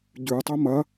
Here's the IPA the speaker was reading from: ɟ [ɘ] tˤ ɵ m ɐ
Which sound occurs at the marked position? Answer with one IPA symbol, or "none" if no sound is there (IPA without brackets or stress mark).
ʉ